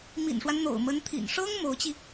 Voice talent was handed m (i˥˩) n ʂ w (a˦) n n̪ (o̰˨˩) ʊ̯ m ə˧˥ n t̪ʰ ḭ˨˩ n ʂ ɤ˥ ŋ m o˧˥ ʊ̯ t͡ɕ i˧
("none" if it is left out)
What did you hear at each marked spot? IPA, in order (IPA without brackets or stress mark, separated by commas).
ḭ˨˩, a˦, o̰˨˩